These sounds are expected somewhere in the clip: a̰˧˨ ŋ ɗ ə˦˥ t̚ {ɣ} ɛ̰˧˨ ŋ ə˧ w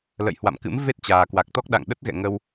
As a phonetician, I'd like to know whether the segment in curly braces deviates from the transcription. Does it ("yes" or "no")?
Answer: no